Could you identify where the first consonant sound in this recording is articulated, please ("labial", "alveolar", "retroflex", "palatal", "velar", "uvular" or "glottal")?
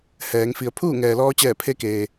glottal